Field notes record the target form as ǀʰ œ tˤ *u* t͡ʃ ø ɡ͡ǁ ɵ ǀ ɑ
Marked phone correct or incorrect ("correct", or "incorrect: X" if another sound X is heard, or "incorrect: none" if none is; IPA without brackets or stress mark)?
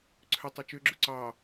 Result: correct